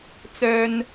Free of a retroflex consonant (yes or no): yes